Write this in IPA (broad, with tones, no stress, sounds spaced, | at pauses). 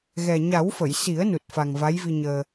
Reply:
ɣ ɛ˨˩ ɲ a˨˩˦ w f ə˨˩˨ j s i˨˩˦ ə̯ n u˨˩ t̚ f a˨˩ ŋ v a˧˥ j v i˧ ɲ əː˧